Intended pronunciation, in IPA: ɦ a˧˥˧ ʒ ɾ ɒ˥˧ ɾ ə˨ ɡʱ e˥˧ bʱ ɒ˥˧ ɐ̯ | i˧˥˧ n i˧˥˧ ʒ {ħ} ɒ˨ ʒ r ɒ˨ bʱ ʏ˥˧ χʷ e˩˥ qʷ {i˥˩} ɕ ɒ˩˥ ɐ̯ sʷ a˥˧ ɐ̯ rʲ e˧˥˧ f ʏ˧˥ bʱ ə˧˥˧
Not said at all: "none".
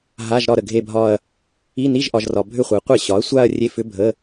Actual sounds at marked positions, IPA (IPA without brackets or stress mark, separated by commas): ʔ, e˥˩